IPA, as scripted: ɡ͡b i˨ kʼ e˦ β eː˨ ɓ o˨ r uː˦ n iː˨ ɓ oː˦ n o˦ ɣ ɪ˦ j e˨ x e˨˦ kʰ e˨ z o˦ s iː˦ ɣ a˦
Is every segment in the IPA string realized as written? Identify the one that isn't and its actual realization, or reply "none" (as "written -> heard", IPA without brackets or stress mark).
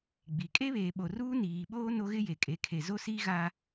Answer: x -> kʼ